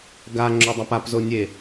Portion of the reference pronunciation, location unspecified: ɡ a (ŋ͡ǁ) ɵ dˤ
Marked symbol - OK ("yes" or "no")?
yes